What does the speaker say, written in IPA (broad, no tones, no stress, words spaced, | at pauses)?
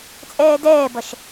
t͡sʼɛːdɛːbʌʃ